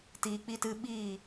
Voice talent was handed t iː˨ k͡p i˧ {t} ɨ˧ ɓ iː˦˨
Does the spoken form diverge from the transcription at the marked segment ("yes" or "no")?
no